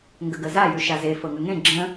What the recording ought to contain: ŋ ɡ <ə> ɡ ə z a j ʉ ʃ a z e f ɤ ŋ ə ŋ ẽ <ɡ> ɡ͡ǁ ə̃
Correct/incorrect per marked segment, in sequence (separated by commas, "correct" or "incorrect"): correct, incorrect